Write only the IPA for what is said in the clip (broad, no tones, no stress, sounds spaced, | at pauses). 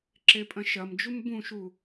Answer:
ǁ e pʼ ɐ̃ ʃ ɐ m d͡ʒ u m b ũ ʃ u